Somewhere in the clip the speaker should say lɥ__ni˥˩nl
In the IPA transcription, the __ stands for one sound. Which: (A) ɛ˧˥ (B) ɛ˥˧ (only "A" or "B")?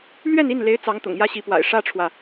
B